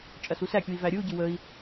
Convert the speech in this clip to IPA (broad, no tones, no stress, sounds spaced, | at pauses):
t͡ʃʼ ɐ s u s æ kʲ u i̯ v æ ɾʲ ɯ u̯ ɟ ɯ w ə i̯